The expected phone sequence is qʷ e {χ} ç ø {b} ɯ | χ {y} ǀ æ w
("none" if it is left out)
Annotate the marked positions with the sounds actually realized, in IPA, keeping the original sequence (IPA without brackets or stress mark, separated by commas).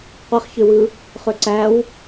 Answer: χ, w, ø